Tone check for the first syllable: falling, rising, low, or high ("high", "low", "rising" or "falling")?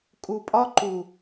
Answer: low